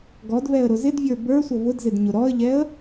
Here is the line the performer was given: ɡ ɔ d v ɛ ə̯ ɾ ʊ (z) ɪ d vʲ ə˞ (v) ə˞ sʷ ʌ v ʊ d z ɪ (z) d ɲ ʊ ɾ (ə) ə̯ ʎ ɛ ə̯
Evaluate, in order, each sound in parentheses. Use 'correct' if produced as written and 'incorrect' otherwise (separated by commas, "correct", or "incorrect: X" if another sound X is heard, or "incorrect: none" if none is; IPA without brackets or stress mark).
correct, incorrect: b, incorrect: none, incorrect: ɔ